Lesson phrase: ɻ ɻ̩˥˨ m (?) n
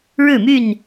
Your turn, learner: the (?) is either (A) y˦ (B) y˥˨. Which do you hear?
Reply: B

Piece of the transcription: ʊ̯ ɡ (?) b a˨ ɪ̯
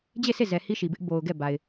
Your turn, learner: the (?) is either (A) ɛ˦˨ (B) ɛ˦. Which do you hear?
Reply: A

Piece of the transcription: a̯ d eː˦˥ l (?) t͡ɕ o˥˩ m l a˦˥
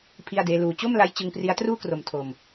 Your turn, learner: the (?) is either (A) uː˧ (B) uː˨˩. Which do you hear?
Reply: A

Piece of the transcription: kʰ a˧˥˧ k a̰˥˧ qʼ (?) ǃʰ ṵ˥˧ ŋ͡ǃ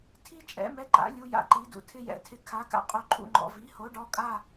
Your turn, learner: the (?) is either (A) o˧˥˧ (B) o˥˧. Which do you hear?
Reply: B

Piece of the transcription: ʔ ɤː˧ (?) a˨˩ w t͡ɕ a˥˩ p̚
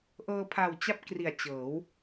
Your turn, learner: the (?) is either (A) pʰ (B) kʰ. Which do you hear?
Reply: A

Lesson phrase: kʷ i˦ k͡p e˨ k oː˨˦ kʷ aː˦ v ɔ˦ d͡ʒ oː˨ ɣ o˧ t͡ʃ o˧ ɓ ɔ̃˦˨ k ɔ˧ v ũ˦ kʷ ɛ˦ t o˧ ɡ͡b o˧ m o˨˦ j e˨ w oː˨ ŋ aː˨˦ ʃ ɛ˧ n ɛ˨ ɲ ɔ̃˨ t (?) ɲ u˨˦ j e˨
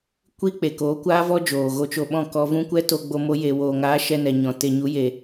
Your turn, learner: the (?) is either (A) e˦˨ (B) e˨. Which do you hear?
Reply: B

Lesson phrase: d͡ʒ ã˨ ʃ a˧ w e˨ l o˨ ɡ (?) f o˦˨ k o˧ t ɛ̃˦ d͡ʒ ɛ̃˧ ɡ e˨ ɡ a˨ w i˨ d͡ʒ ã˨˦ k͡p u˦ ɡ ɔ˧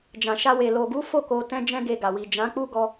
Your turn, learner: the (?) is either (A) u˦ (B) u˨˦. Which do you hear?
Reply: B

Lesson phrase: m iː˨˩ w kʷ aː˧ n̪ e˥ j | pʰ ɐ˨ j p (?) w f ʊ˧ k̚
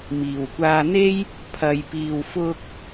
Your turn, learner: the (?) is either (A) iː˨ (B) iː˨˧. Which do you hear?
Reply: A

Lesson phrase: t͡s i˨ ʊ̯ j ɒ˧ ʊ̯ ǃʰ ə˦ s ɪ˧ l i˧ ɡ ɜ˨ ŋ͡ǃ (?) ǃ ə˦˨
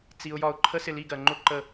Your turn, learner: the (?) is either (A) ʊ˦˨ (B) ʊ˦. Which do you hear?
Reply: B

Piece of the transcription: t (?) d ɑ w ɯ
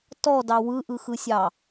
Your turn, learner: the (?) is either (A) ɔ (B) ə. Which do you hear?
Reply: A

